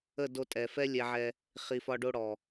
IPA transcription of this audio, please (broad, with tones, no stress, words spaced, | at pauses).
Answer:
ə˦˨do˧tʼɛ˨ fɛ˦lʲɛ˧ʕɛ˧ | χi˨fɒ˧ɖo˧ ɽɔ˨